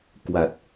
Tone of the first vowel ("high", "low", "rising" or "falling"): low